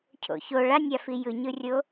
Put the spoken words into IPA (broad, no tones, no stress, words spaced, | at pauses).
cʰo̰ço ɭanʲafi jɯɲɯrʲo